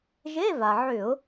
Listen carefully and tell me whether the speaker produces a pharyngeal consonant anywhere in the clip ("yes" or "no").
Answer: yes